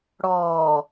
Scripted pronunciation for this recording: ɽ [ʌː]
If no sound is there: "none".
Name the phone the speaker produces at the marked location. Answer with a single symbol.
ɔː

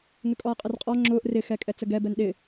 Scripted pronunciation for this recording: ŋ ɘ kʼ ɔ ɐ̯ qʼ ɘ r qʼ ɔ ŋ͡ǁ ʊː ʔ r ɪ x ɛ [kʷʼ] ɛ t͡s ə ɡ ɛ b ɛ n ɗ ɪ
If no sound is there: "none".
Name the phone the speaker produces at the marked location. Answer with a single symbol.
kʼ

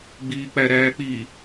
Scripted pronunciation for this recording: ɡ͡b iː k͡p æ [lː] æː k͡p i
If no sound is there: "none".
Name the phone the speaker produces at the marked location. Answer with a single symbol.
ɾ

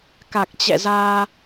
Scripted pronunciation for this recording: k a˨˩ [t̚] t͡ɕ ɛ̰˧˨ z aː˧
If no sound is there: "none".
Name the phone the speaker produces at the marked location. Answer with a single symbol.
k̚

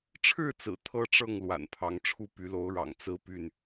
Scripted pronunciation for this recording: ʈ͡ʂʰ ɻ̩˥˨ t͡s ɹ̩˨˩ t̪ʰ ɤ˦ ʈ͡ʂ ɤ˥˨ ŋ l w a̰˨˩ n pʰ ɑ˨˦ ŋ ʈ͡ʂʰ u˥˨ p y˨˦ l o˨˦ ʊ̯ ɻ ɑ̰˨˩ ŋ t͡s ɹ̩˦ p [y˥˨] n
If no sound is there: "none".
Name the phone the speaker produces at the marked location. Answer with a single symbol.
y˥˨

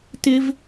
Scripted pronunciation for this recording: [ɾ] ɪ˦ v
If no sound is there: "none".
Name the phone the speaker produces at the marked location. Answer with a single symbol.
t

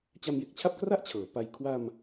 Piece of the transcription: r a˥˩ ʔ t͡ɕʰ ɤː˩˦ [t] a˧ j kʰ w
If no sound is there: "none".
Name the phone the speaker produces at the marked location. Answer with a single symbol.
p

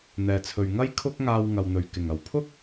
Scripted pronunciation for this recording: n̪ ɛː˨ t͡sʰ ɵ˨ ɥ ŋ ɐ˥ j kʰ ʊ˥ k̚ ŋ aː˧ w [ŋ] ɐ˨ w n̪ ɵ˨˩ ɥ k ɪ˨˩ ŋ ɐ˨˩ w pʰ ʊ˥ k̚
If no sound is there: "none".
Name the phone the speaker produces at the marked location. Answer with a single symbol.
ŋ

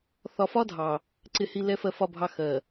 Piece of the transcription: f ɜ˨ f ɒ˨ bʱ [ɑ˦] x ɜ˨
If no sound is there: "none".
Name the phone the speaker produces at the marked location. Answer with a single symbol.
ɑ˨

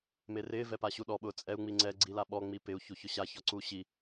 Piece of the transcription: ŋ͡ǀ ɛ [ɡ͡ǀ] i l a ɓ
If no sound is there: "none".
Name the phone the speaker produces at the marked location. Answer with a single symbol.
ɡ͡ǀ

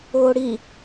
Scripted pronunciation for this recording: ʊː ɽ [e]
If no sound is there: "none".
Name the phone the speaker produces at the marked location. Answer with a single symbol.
i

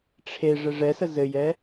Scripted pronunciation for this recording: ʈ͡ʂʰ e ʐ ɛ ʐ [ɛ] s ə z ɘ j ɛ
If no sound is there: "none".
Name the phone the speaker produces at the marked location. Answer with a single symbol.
ɛ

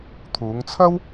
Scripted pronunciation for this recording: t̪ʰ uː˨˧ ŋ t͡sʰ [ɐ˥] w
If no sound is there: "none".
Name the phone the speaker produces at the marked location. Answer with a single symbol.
ɐ˥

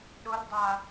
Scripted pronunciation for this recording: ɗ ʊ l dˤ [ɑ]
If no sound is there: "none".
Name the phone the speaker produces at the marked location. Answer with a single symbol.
a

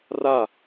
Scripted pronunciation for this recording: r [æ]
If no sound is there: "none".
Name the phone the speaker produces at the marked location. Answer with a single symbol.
a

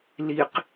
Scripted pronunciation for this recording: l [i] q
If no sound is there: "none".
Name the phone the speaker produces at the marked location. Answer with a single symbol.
i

